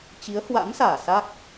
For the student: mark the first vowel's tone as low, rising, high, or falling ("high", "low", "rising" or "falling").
rising